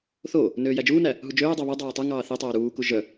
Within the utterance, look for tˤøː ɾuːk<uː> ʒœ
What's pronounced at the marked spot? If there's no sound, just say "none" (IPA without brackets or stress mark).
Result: u